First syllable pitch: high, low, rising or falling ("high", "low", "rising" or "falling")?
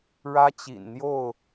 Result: high